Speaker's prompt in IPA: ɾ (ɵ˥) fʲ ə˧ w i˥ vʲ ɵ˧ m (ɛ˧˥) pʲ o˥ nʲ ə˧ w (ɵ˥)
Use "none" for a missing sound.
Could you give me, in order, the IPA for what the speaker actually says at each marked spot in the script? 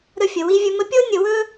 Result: ɵ˥, ə˧˥, ɵ˥

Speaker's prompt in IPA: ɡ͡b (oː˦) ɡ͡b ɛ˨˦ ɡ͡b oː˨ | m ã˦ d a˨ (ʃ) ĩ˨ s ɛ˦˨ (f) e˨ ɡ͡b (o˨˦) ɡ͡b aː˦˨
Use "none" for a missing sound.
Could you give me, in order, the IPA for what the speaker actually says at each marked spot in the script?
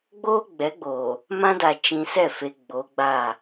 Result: oː˦, t͡ʃ, f, o˨˦

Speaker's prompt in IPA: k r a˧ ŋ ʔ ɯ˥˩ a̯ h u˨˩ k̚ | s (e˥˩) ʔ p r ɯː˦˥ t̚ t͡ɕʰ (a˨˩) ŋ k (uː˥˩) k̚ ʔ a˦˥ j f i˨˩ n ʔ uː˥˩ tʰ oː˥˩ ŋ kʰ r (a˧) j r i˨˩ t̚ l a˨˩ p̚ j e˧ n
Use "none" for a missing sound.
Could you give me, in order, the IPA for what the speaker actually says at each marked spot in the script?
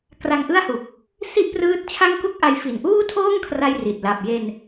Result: i˥˩, a˥˩, u˥˩, a˧

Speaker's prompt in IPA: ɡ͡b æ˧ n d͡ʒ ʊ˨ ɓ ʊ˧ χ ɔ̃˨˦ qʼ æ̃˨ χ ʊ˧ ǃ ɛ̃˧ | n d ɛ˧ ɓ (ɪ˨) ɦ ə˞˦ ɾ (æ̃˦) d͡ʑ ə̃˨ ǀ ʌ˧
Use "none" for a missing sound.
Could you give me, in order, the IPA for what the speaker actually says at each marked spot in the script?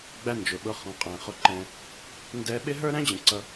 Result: ɪ˦, æ̃˦

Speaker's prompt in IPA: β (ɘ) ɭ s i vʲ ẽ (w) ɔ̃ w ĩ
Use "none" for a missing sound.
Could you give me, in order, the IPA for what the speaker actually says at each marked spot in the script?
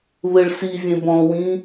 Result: ɘ, b

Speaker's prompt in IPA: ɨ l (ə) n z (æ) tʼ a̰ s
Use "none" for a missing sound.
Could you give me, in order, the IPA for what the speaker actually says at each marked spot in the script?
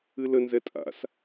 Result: ə, ɛ

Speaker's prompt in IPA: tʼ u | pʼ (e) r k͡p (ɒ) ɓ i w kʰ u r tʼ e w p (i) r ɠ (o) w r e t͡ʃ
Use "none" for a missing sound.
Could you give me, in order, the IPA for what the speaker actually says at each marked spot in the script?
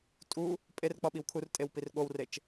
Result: e, ɒ, i, o

